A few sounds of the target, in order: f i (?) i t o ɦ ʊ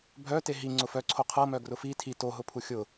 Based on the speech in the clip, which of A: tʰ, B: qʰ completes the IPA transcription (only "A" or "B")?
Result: A